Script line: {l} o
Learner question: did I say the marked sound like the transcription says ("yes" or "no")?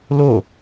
yes